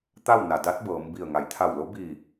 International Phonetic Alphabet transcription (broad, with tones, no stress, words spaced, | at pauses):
t̪a˥˨wna˩ da˧˥t̚ bɤː˩˧mbi˧˩ə̯ ŋa˩˧jt̪ʰa˧˩wlo˧˥ biː˧˩